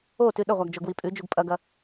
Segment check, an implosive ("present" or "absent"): present